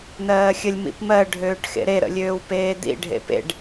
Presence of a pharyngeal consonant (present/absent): absent